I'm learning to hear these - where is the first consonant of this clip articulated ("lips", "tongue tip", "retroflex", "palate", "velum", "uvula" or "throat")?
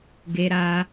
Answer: velum